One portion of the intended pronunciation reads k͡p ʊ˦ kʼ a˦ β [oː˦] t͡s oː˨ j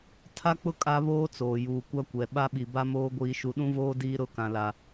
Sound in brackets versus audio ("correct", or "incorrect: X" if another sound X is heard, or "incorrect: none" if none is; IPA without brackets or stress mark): correct